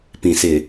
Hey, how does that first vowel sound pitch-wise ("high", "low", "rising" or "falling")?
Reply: low